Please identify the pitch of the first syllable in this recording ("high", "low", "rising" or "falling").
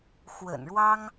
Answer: low